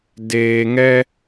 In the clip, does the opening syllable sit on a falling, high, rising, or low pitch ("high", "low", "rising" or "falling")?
low